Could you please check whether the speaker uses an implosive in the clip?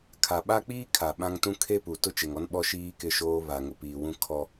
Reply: yes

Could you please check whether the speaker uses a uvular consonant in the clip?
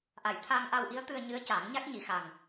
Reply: no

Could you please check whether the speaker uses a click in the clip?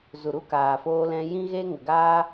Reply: no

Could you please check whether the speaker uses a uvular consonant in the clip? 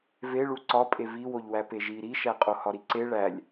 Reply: yes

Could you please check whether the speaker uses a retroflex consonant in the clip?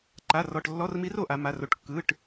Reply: yes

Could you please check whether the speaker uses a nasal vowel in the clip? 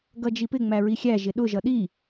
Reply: no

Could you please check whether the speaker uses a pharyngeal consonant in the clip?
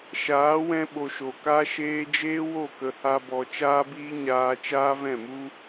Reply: no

